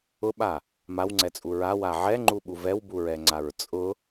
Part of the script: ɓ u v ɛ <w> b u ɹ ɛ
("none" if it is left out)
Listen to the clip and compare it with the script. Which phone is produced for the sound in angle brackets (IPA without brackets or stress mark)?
w